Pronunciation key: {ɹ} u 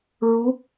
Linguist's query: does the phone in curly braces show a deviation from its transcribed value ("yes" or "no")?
no